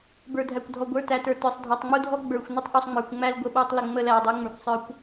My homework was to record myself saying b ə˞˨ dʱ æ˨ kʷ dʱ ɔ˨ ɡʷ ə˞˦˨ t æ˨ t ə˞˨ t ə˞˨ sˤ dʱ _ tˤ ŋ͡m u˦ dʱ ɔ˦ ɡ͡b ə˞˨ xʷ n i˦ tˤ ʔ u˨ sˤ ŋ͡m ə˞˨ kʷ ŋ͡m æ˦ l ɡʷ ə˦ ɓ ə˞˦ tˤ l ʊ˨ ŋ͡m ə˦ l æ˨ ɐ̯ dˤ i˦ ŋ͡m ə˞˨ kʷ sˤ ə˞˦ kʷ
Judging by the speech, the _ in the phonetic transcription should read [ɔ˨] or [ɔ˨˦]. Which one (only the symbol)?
ɔ˨